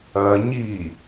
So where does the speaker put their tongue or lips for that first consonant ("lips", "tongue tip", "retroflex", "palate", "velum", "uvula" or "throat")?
palate